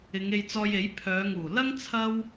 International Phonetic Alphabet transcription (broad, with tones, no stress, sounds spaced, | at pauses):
ɪ˨˧ ŋ e˧ j t͡s ɔː˧ j e˨˥ j pʰ œː˨˧ ŋ uː˨˩ l ɐ˥ ŋ t͡sʰ ɐ˥ w